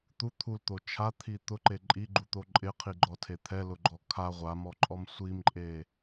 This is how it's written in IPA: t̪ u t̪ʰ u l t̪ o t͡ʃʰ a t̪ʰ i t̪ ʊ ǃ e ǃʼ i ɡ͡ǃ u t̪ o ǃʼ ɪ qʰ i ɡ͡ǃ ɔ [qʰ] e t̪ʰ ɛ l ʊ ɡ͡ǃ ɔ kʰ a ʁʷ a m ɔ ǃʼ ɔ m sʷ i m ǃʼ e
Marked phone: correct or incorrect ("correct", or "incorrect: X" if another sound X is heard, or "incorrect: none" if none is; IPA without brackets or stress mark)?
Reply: incorrect: tʰ